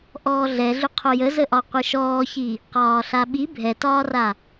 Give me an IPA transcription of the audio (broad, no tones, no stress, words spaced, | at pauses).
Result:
ʔɔːɮɛɮʏ qʰojəzəʔɒ qʷɯʃɔːçi | qɒːɬaɓi bʱɛtɒːra